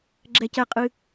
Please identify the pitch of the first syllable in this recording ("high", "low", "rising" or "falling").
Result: low